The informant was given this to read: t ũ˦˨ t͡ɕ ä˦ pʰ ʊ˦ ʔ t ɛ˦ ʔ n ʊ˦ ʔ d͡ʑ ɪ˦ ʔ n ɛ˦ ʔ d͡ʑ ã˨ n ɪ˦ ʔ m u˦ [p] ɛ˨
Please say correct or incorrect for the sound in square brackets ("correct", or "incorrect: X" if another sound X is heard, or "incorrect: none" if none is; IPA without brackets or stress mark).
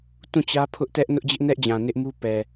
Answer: correct